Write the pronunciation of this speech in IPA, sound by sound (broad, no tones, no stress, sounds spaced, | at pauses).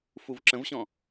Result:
f u v ǁ ə̃ v ɕ ɔ̃